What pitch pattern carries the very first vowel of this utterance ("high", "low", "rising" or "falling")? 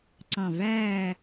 falling